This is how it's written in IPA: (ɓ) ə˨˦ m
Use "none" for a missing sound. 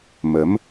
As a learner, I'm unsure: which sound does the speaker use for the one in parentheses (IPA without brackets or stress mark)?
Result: m